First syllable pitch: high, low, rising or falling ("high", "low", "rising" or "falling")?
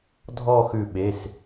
falling